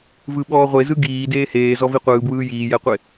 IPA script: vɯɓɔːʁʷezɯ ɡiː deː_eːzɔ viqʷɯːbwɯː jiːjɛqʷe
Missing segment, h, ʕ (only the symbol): h